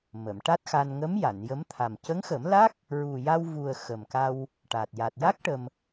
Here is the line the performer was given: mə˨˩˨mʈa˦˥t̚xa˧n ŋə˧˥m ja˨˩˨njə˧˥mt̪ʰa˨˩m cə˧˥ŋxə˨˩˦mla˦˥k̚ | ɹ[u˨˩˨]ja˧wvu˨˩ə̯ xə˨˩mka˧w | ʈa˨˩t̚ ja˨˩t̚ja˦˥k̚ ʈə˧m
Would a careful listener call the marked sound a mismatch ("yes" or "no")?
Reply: yes